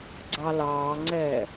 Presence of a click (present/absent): present